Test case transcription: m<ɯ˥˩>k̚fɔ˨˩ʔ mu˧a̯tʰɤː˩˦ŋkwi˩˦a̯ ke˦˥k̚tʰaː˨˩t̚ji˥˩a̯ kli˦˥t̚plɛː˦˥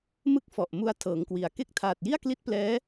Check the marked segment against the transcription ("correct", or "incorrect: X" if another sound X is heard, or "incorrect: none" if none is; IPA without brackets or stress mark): correct